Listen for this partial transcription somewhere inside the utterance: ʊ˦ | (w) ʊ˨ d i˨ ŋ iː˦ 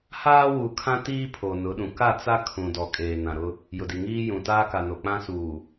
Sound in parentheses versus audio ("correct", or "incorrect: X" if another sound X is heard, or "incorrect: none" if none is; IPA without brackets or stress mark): incorrect: j